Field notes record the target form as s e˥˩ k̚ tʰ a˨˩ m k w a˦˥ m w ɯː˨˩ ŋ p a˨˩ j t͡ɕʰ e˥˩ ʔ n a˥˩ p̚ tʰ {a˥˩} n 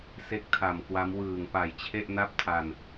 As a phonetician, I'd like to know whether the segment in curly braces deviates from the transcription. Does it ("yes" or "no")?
yes